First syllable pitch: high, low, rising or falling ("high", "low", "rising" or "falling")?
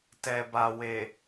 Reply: low